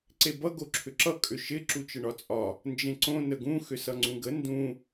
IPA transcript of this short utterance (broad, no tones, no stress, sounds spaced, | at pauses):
ǀ e b ʌ ɡ o ǁʰ ʏ ǁ ʌ kʼ ʏ ʃ ɪ ǁ u t͡ʃ ə ɳ ɒ t͡sʼ ɒ | n d͡ʒ ẽ ǀ õ n ə ɡ ũ x ʏ s ʌ ŋ͡ǀ ũ ɡ ə n d ũ